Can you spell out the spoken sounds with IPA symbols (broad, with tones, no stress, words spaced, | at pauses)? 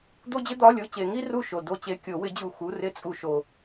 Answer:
d̪o˥d͡ʑɪ˥d̪ɒ˧˥˧lʲo˧˥˧ t͡ɕe˨˩˦ŋi˥ru˦˨ʃo˨ do˦˨t͡ɕe˧˥˧kʲo˨˩˦wɪ˩˥ d͡ʑu˦˨ xu˧˥˧ rɪ˥t͡sʼu˦˨ʃo˦˨